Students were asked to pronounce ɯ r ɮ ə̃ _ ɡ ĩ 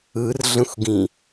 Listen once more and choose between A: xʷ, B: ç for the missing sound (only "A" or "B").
A